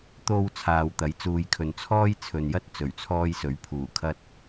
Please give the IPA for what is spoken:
t̪o˨w t͡sʰaː˨wt̪ɐ˨˥j t͡suː˨jkʰɵ˨n t͡sʰɔː˥jt͡sʰɵ˨njɐ˥t̚ t͡sɵ˨˩ɥt͡sʰɔː˧jsɵ˨˥ɥ pʰuː˨˩kʰɐ˧t̚

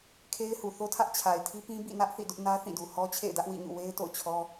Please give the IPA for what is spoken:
kʰe˦ɪ̯hu˨θo˦tʰä˦ʔ t͡ɕʰa˨ɪ̯tʰi˦pĩ˦ bḭ˦˨nä˦ʔ θḭ˦˨dʊ˦ʔ nä˦θĩ˦˨du˨ hɔ˦ t͡ɕʰḛ˦˨ɪ̯dä˦ʔwḭ˦˨ɲṵ˦˨ we˦ɪ̯to̰˦˨ʊ̯t͡ɕʰɔ˦

